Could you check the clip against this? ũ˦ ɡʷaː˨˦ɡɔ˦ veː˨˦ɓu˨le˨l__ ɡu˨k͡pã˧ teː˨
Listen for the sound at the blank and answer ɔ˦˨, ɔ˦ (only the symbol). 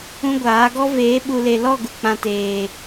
ɔ˦˨